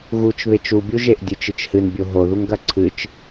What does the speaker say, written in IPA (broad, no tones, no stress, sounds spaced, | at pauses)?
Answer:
ɣ u t͡ʃ β e t͡ʃ u bʲ u ʒ e ʔ dʲ ɨ t͡ʃ ɨ t͡ʃ h ɨ n bʲ o ɦ o ð u ŋ ɡ ɐ ǀʰ ɨ t͡ʃ